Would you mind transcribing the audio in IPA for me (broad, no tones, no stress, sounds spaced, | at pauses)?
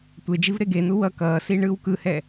tʷ e d͡ʒ i v ɾ e ɡ e n̪ u w ʌ k ʌː s i ɳ ɯː w k ɯ h ɛ